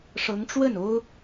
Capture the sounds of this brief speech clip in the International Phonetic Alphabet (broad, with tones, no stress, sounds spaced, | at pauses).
ʂ ɤ˧˥ ŋ ʈ͡ʂ w ə˥˩ n o˥ ʊ̯